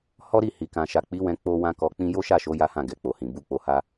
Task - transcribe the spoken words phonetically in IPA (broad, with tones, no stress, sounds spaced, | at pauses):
h ɔ˦ ɾ i˦˨ h i˨ k ã˨ ʃ a˨ k͡p i˨˦ w ɛ̃˧ k͡p o˦ w ã˦ k ɔ˧ k͡p ĩ˦ j o˦ ʃ a˦˨ ʃ o˨˦ j a˦ h ã˦˨ ɡ ɛ˨ k͡p o˨ h ĩ˨ b u˧ k͡p o˧ h a˦